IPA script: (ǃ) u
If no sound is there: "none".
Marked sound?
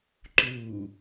ǃ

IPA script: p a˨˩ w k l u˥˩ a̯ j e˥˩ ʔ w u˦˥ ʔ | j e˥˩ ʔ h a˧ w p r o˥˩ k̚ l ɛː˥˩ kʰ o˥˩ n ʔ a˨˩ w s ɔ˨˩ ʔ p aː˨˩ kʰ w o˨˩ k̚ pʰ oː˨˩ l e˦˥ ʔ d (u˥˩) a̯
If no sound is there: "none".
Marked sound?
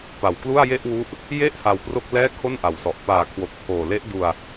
u˧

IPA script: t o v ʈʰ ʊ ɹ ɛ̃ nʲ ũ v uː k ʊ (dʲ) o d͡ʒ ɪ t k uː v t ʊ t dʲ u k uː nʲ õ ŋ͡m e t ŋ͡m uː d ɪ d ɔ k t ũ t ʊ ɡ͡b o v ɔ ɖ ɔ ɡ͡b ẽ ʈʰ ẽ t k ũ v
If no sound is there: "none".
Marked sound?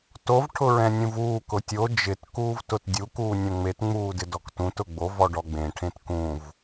tʲ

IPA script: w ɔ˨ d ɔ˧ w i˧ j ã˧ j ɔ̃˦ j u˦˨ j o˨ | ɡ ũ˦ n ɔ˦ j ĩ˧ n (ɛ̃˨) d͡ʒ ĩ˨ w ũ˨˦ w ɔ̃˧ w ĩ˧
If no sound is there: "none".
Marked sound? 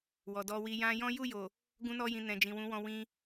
ɛ̃˨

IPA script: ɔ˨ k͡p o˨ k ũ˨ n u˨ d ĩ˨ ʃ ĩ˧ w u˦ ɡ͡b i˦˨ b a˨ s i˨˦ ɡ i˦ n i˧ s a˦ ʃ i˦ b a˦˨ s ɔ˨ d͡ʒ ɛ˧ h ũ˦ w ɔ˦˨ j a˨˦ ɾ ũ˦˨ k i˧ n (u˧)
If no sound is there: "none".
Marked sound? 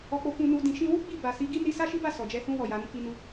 u˧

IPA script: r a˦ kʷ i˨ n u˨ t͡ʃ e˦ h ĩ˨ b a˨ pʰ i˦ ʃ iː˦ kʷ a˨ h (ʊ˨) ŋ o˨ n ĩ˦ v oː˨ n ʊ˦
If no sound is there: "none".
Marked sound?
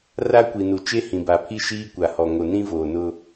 ɔ˨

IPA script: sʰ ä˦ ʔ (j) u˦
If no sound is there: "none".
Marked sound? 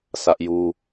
j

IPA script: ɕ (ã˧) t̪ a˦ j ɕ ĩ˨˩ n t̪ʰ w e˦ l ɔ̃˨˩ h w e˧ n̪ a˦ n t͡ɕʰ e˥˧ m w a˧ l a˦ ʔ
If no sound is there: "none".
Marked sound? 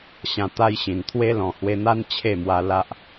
ã˧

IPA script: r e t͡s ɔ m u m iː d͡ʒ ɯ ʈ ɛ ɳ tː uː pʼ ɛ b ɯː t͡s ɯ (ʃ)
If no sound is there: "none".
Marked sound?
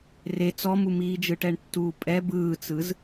z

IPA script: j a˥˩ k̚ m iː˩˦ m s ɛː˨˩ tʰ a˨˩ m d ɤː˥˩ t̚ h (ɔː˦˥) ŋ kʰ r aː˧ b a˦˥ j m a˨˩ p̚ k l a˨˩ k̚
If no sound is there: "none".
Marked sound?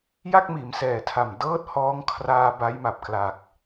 ɔː˦˥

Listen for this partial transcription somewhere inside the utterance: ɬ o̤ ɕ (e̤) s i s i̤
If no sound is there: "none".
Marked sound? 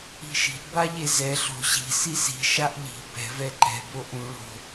i̤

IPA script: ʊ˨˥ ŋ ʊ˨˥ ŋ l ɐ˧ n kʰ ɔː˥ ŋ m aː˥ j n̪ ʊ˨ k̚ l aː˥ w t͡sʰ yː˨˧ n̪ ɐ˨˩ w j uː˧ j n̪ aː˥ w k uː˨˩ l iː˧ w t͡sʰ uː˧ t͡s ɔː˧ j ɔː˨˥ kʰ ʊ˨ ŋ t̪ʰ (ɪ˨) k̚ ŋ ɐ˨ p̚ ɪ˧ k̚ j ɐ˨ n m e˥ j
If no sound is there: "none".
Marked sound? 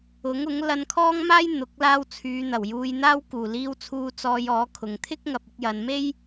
ɪ˥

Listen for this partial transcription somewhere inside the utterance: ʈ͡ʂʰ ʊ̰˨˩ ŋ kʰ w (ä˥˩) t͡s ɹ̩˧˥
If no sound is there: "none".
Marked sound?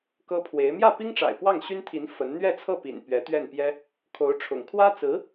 ä˥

